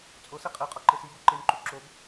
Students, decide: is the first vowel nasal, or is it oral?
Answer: oral